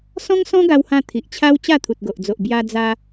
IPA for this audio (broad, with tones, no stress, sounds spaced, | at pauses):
s ɔ̃˦ ŋ s ɔ̃˦ ɡ a˧ w h ã˧ t̪ʰ i˨ ʔ t͡ɕʰ a˦ w t͡ɕ a˥˧ t̪ʰ u˨ t̚ ɡ o˨ ʔ d͡z o˨ ʔ b j a˧ d͡z a˧